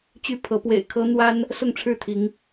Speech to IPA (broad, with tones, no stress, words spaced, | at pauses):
t͡ɕy˦pʰɤ˨˦ pwḛ˨˩ɪ̯kʰɤ˦ n̪wa˦n | sʊ˥˨ŋʈ͡ʂʰɻ̩˥˨t̪ʰi˨˦ŋ